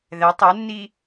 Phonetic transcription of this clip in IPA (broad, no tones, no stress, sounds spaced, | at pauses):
ð ɛ tˤ ɛ nː i